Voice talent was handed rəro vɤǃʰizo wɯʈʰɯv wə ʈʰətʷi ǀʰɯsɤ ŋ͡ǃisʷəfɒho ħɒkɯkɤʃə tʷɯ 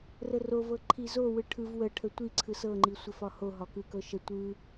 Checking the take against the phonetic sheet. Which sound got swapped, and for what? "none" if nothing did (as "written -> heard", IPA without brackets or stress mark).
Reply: ħ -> ɦ